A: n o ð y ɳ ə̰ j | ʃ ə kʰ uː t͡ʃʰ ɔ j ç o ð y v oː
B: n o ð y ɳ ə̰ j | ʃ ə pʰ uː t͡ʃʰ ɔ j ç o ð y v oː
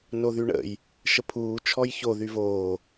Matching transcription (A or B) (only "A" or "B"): B